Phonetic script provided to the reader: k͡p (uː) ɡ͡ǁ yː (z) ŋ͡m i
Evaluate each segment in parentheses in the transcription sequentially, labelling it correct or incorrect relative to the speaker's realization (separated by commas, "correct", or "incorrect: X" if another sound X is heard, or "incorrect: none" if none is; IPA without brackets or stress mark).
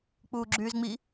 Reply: correct, correct